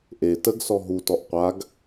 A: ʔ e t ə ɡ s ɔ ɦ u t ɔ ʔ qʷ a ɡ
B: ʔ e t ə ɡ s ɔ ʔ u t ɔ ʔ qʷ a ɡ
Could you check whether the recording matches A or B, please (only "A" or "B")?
A